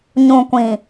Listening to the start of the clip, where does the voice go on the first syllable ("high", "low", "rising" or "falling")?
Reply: low